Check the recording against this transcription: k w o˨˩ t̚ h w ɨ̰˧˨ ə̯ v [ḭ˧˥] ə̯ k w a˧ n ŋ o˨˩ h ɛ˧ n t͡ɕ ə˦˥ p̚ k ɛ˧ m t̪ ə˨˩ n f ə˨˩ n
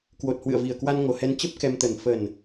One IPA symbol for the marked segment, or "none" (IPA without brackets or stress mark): i˨˩